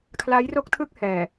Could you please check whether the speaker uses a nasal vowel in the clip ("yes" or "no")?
no